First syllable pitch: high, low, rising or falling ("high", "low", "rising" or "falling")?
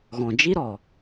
low